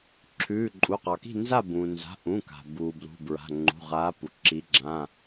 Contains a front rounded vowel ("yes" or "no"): no